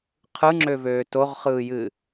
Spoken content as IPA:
qʰ ɯ ŋ͡ǁ ø v øː t o ʁ χ ɯː j ɨ

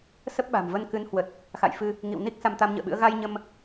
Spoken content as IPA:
s ə˦˥ p̚ ɓ a̤˨˩ m v ə˧ n k ɨ˨˦ n h w ə˨˩ t̚ | x a̰˧˨ j f ɨ˧ | ŋ ḭ˧˨ w n i˦˥ k̚ s a˧ m t̪ a˧ m ɲ ə̰ː˧˨ ɓ ɨ̰˧˥ ə̯ ɣ a˧ j ɲ ə˧ m

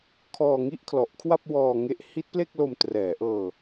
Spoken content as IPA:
kʰ ɔː˧ ŋ i˥˩ ʔ kʰ l ɔ˨˩ ʔ kʰ w a˥˩ p̚ w ɔː˧ ŋ e˦˥ ʔ h i˦˥ t̚ p l e˥˩ k̚ l o˧ m t r ɛː˩˦ ʔ ɤː˧

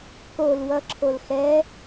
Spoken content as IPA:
k o l w ʌ ǁʰ o l x ɛ

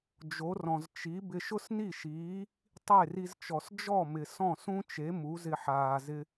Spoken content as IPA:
d͡ʒ o˩˥ r ɔ̃˩ z t͡ʃ i˩˥ b ɪ˧ ʃ ʊ˥ s n i˥˩ ʃ iː˩˥ | tˤ e˥˩ r i˧ z t͡ʃ ɔ˩ s d͡ʒ ɔ˥˩ m ɪ˩ s ɔ̃˥˩ s ũ˥ t͡ʃ e˩˥ m u˩˥ z ɪ˧ ħ aː˩ z ɪ˧

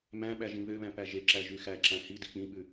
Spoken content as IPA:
m æ̃ ɓ æ ʒ ĩ β ø β æ̃ p æ ʒ e ǁ æ ʒ y x æ ǁ æ̃ h i d i k͡p ĩ ɓ ʉ

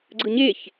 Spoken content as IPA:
ɡ͡ǀ ɯ ɲ e ç

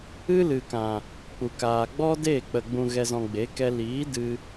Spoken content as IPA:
ɨ˦ l ɨ˨ k ã˨ | k͡p u˨ k aː˨ ɡ͡b ɔ˦ d e˦˨ k͡p ə˨ ɡ͡b ũ˨ ɣ ɛ˨ z ɔ̃˨ ɡ͡b e˨˦ k ɛ˧ l iː˨˦ d ɨ˧

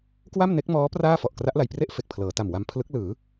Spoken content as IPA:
k w a˥˩ m n e˦˥ k̚ m ɔː˦˥ p r aː˥˩ f ɔ˨˩ ʔ k r a˦˥ ʔ l a˨˩ j p r e˥˩ ʔ f e˨˩ k̚ pʰ l ɤː˩˦ t a˨˩ m w a˧ m pʰ l ɯ˦˥ k̚ l ɯː˩˦

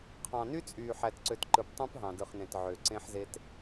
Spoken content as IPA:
qʰ ɑ̃˨ n y˦ t͡sʼ yː˨ ħ æ˨ t ǀ ø˨ t ǃ ɯ˨ p tˤ ũ˦ p ɦ ɑ̃˨ d ɯ˨ χ n ẽ˨ t ʕ ø˨ ǀ ẽ˦ ħ z e˦ t

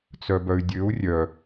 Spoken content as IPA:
t͡s œ b œ y̯ dʲ ø u̯ rʲ œ

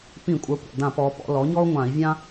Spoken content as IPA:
p ĩ˧˩˧ kʷʼ ə˞˩˥ kʷ a̰˨˩ d ã˧˩˧ p ɔː˩˧ p ɔ̰˩˧ l ɔ˩˥ ɲ ɔː˦ u̯ ŋʷ ãː˧˩˧ i̯ vʲ ã˦

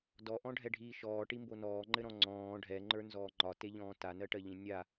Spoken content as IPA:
d ɔ ʔ ɔ̃ ɖʱ ɛ ɖʱ iː ʃ ɔː ʈ i m b o n ɔː ŋ͡ǃ ɘ ɾ ɔ̃ ŋ͡ǀ ɔ̃ː ɖʱ ɛ ŋ͡ǃ ə˞ n z ɔː ŋ͡ǃ ɒ t e ʎ ɔ̃ː t a n ɜ ʈ ɜ ʎ ĩ nʲ a

